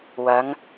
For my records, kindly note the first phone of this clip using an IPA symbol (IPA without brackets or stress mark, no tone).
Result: w